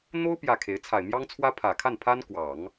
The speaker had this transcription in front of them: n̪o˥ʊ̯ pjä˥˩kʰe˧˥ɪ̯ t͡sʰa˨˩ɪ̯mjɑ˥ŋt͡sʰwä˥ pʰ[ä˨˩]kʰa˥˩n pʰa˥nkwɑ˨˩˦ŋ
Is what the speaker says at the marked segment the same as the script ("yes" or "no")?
yes